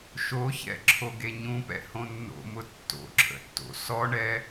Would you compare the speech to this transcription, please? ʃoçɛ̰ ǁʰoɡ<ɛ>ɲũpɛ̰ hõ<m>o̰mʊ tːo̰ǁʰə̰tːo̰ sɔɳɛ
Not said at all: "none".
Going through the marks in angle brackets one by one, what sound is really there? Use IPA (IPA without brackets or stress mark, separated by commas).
e, nː